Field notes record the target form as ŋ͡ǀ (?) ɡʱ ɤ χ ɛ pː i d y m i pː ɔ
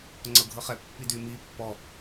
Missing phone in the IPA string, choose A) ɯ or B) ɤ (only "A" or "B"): B